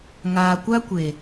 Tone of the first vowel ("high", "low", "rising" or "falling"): low